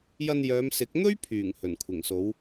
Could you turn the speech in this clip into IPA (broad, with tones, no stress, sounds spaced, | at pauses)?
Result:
j ɐ˧ n j œː˨˧ m s ɪ˨˥ k̚ n̪ ɵ˥ ɥ pʰ yː˨˩ ŋ h ɵ˨˩ n kʷʰ ɪ˨˩ ŋ s o˨˥ w